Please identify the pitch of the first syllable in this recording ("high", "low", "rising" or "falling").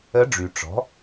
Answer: rising